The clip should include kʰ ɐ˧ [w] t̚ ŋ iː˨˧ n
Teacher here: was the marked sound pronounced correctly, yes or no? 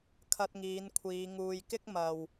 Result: no